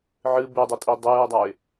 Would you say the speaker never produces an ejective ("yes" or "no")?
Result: no